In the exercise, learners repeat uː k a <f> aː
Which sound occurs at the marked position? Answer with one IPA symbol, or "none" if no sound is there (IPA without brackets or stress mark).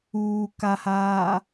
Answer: h